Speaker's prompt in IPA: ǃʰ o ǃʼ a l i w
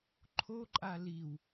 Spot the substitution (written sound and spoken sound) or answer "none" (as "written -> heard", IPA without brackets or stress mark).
none